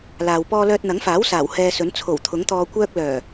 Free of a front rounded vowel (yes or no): no